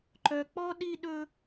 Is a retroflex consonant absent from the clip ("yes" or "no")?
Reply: yes